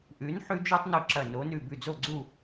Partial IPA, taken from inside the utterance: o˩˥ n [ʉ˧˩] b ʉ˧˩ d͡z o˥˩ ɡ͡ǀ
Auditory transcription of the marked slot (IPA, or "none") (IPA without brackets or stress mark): ʉ˧˩